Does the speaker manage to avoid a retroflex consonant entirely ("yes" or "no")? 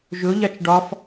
no